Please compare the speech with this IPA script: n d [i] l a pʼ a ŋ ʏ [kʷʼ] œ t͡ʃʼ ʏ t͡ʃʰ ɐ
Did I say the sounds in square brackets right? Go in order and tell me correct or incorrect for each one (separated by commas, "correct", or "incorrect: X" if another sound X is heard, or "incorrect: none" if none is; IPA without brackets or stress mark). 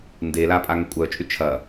incorrect: e, correct